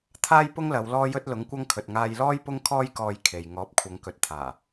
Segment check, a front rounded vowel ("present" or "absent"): absent